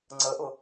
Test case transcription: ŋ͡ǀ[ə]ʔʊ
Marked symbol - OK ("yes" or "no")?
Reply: yes